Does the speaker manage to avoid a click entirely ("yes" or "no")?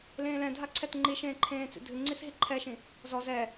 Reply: no